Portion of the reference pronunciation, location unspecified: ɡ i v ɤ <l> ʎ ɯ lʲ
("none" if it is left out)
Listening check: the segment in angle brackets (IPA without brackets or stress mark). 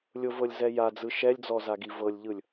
lʲ